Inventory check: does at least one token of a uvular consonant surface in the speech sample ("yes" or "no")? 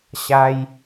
no